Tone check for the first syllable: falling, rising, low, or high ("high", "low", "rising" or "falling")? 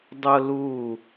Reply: high